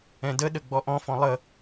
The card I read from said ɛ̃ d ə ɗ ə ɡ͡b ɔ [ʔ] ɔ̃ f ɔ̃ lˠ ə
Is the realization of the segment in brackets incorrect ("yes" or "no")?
no